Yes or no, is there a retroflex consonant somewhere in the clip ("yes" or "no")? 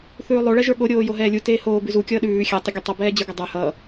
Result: yes